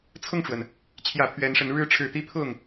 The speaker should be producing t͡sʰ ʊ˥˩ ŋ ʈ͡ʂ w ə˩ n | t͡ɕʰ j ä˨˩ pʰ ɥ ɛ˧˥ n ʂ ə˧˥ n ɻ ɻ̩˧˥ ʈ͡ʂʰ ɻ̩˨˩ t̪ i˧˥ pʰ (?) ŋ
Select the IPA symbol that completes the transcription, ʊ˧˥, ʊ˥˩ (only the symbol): ʊ˥˩